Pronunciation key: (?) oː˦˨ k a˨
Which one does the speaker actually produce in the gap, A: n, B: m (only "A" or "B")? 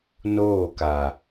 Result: A